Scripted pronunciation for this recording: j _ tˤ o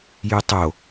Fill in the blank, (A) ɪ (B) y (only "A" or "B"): B